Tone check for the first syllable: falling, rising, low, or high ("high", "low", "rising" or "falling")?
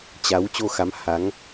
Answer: rising